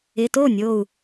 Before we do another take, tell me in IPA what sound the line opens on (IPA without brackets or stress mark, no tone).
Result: ɪ